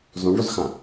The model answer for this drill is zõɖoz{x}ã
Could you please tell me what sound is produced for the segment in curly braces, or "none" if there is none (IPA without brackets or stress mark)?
x